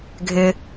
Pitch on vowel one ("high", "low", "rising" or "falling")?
low